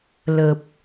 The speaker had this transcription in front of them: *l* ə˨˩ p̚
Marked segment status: correct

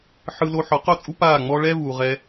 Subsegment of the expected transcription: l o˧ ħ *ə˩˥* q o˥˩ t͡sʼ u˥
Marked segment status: incorrect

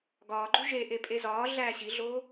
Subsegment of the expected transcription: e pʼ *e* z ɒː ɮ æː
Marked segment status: correct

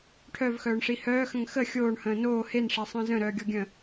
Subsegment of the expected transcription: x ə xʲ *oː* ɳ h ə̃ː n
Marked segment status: correct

